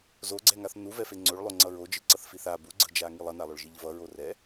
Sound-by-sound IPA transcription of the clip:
z o ɡ͡ǀ ɛ ŋ a θ n u v ɛ f e ŋ͡ǀ o ɭ lˠ o ŋ͡ǀ ʌ ɹ o d͡ʒ ɯ ǀ ʌ θ f i θ a b u ɡ͡ǀ ɯ d͡ʒ a ŋ i lˠ ʌ n a lˠ o ɭ ʒ i ʎ v ʌ ɹ o r ɛ

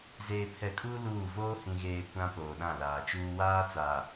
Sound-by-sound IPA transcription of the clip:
z eː˨ pʰ ɛ˨ kʼ uː˦ l uː˦˨ v oː˦ h ĩ˨ ɣ eː˨ kʷ ã˦ p oː˨ ɗ ã˦˨ l aː˨ t͡ʃ uː˦ w aː˦ t͡s aː˨

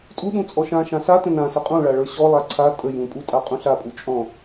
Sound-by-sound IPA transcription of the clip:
tʼ u ɗ ũ t͡sʼ ɔ ʃ ã ʃ ã s a t ə̃ n ã s ə qʼ ũ ɭ a ɭ ə˞ ɕ ɔ lˠ a ǀʰ a tʼ ə j ũ pʼ u tʼ a qʼ ũ ɬ a pʼ u t͡ʃʼ ɔ̃

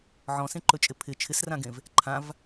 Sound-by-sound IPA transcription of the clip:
ʕ ɔ̃ s ẽ ǃ ɵ t͡ʃʼ ɪ pʰ ɪ t͡ʃʰ ɪ s r ã ɡ ẽ v | ǃʰ ã v

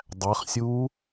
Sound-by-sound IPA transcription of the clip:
dˤ æ χ sʲ uː

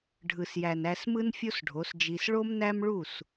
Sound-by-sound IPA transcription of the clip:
ɖʱ ɯ˨ s j æ˨ n æ˧ s m ɯ˦ n fʲ o˦ s ɖʱ o˨˦ s d͡ʒ i˧ s ɭ o˦ m n æ˦ m ɭ u˦˨ s

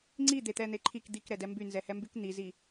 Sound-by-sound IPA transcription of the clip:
ŋ͡ǀ i d̪ e t̪ ɛ n̪ e ǃʰ i k d̪ i k ɾ ɛ d ɛ m b y n z ɛ h ɛ m b y k n̪ i z i

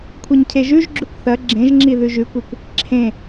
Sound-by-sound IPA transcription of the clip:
kʷʰ ɐ ɲ cʰ e ʒ ʉ ʒ ɡ͡ǁ ʉ kʷ θ ɐ ɡ͡ǁ ẽ ʒ ŋ͡ǁ i ð ʉ ʒ ʉ kʷ e kʷ | ǁʰ ẽ

